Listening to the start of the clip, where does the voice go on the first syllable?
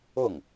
falling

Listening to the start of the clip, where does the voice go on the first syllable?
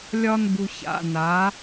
high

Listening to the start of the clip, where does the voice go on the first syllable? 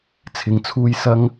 low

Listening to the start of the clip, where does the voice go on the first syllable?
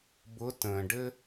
rising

